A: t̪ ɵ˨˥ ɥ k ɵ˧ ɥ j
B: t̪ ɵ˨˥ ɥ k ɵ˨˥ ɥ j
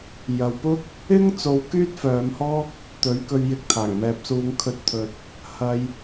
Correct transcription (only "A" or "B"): A